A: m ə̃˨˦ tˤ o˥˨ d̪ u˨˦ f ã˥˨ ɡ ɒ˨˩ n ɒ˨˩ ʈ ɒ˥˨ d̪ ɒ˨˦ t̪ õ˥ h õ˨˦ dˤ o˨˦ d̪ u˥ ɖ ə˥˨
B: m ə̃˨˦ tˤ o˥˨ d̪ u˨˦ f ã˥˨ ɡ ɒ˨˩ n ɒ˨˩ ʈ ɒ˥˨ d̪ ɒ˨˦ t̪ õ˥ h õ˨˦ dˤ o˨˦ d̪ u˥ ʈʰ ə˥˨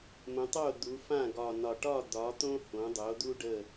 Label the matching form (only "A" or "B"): A